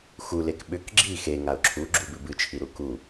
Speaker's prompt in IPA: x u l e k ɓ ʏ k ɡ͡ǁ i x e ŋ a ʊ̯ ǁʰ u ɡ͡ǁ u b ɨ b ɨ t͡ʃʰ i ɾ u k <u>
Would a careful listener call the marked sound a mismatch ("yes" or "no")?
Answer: no